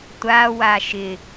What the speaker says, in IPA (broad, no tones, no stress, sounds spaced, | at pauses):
tʷ a w a ʃ ɪ